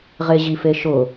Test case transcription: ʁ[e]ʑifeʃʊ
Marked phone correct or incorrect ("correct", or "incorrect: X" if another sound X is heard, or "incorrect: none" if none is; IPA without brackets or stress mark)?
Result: correct